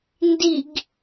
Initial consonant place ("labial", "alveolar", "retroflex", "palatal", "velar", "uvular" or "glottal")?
alveolar